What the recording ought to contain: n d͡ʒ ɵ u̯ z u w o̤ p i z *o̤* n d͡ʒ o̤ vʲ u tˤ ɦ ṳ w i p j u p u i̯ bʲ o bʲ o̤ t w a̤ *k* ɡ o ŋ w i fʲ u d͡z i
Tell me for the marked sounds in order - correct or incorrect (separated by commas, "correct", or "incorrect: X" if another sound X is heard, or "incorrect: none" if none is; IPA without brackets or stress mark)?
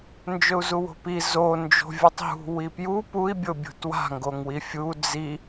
incorrect: o, incorrect: ŋ